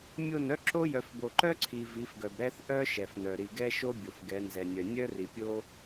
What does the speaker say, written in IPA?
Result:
mʲo˦˨nœ˦ ǁo˦ jœ˨fbo˨ǃœ˦ǀʰi˨ vi˨˦fɡœ˨bɾɛ˦θ ʔœ˦ ʃɛ˨fnœ˨ ɾi˨ɡɛ˦ʃo˦ bʲo˨fɡɛ˨˦nzɛ˨nʲœ˨ nʲœ˦ri˨pʲo˦

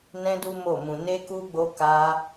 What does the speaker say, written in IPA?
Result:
nɛ̃˦du˦mo˦˨mũ˧ ne˦ku˦ɡ͡bo˦ ka˦

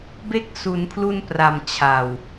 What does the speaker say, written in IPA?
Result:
be˦˥k̚su˩˦n pʰlu˧npra˨˩m t͡ɕʰa˨˩w

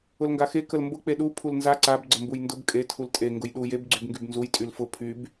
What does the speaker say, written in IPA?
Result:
ʊlŋɡaxe kəlmbʊ k͡peɗu pʰulnza ǀab ɡ͡ǀəmbujndʊb kʼe tʰultʼe ŋɡʊjɗu jeb ɡ͡ǀybŋɡybnzuj tʼylfʊ pʰyb

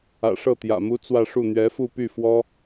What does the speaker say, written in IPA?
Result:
ä̰˨˩ʂɤ˥˩t̪jä̰˨˩ mu˥t͡swä˥˧ʂu˥˩ n̪ɥɛ˧˥fu˥˧py˥˩fwɔ˥

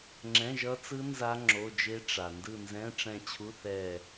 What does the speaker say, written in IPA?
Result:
ŋ͡ǁɛ̃˧˥˧ʒʌ˦˥t͡sɯ˦˥ nza˦˥ ŋ͡ǁo˧˥˧d͡ʒe˦˥ ʈ͡ʂa˨ ndɯ˦˨nzɛ̃˧˥˧ʈ͡ʂɛ̃˦˨t͡ɕʰu˧˥˧ θɛ˦˨

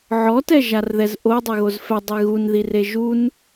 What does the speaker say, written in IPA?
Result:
ʕɔtɛʒarðɛz ʔodˤeɣoz fɛdˤe ɣunðire ʒun

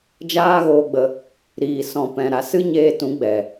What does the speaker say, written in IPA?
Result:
d͡ʒaː˦ɣoː˧ɡ͡bə˧ | ɾiː˨sɔ̃˨ pɛ̃˨ɾa˨sɨ˦ ɲeː˧tũ˨˦ɡ͡bɛ˨

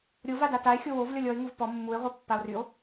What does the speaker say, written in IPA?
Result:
ɾʲova datae̯ xʲowov lʲɔlʲɔe̯ ŋuvpɔ mːue̯ʁʷœ pːao̯ryo̯

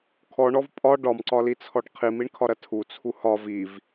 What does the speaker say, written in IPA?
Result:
kʰɔɳɔv pʼɒ ɖɒmǀɒlit͡sʰɔɖ qʰimiɳkʰɒɾɐ tʰut͡sʰu hɒ viv

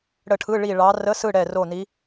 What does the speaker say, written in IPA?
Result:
ɽə˦˨ʈʰɯ˧˥˧ɭi˦˨ ɭɑ˧˥ rə˧˥˧sɯ˦˨ ɽɛ˦˨ro˦˨ni˧˥

